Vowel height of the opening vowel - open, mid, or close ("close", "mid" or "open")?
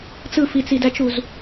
close